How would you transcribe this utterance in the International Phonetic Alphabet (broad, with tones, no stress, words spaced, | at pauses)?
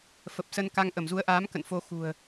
fə˨˩p̚sə˧n ka˧ŋʔə˧˩mzu˨˦ə̯ʔaː˨˦m kə̰˧˨nfo˧xṳ˨˩ə̯